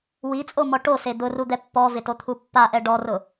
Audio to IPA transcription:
w i t͡sʼ o m ɔ ʈ o s e d̪ ʊ r u d̪ ɛ pː ɔ v ɪ t o t̪ʰ u pː a ʔ ɛ ɖ ɔ r ʊ

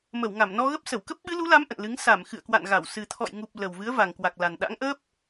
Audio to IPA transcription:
m ə˧˩ w ŋ a˧˩ m n ɔ˧ ɣ ə˦˥ p̚ s ə˧˩ w k ə˦˥ p̚ ɓ ɨ˨˦ l u˨˦ l a˨˦ m ʔ ə̰˧˨ n l ɨ˨˦ ŋ s a˧˩ m x ɨ̰˧˨ ə̯ k w a̰˧˨ n ɣ a˧˩ w s ɨ˨˩ t̪ʰ ɔ̰˧˨ j ŋ u˨˩ p̚ l ə˨˩ w v ɨ˨˦ ə̯ v a˨˩ ŋ k w a˨˩ k̚ l a˨˩ n ɗ a̰˧˥ ŋ ʔ əː˦˥ p̚

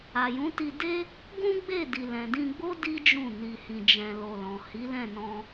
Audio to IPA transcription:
a˨ j ũ˨˦ t i˧ d e˦ | ɡ ũ˦ ɡ͡b e˦˨ d i˨ l ɛ̃˨ d ĩ˧ ɡ͡b o˦ d i˦ d͡ʒ ũ˦˨ n i˧ h ĩ˧ d͡ʒ ɛ̃˧ l o˧ l ɔ̃˨ h i˨˦ l ɛ̃˦˨ n ɔ̃˧

